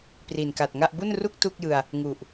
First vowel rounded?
no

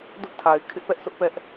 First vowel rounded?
yes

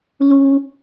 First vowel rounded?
yes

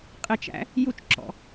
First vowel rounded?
no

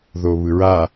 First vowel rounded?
yes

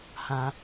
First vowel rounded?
no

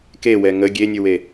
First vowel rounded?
no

